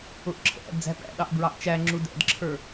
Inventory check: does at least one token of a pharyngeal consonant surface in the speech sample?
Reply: no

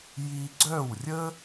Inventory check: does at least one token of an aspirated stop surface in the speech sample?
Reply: no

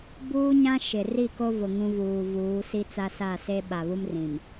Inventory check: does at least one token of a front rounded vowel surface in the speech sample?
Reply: no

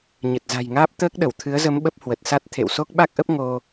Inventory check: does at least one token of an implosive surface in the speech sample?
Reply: yes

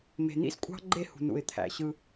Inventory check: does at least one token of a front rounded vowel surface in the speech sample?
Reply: no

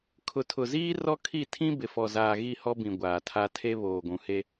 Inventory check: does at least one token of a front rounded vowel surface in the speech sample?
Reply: no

